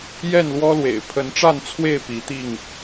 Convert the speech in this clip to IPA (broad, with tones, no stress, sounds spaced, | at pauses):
j ɛ˥˨ n l w ɔ˦ l w ḛ˨˩ ɪ̯ pʰ ə˨˦ n ʈ͡ʂ a˥˨ n t͡sʰ w e˥˨ ɪ̯ p i˨˦ t̪ i˥˨ ŋ